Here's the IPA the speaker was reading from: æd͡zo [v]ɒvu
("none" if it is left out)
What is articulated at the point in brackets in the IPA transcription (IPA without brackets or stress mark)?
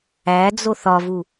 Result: θ